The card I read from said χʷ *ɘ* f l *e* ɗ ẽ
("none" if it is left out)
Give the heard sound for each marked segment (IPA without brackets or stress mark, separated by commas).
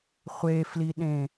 e, i